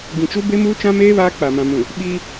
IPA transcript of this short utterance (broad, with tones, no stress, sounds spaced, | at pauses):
ɡ ĩ˨ t͡ʃ u˦ b e˦ m uː˦ t͡ʃ ã˦ m eː˦ β aː˦ k͡p a˨ m ã˨ m ũ˨ | ɓ iː˦